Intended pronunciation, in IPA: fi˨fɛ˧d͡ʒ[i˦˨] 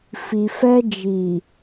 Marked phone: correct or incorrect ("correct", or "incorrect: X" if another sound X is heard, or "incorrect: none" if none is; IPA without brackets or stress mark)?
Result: incorrect: i˨